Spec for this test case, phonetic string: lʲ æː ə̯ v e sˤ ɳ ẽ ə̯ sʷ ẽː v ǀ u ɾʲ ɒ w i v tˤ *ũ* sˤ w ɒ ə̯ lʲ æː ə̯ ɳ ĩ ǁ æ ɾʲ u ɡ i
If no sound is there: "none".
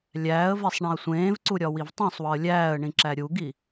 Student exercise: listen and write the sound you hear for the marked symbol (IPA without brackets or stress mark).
õ